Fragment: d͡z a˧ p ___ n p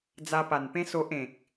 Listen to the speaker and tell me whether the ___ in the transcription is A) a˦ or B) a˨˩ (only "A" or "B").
B